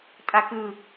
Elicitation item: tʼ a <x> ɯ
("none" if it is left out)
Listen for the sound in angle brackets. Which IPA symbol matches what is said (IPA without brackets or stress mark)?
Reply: k